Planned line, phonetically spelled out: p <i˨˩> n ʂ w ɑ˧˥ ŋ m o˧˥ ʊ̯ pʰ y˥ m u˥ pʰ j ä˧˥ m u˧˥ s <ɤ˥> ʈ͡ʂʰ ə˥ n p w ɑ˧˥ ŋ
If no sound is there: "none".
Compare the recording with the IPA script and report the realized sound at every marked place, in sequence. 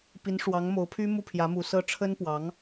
i˧˥, ɤ˥

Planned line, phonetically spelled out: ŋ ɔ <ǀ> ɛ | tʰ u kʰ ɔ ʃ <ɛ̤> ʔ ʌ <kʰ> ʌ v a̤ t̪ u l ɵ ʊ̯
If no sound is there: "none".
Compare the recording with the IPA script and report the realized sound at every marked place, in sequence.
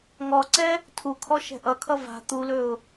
ǀ, ɛ̤, kʰ

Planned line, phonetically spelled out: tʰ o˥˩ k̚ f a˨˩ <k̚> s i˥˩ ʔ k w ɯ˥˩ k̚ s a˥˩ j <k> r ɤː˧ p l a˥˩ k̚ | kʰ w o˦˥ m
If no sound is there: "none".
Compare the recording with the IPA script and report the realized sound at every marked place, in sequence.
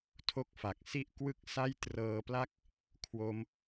k̚, t

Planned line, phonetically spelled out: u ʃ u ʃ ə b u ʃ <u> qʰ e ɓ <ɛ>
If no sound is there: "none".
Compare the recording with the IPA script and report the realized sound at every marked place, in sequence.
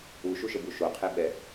o, ɛ

